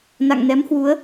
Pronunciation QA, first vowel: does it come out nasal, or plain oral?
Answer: oral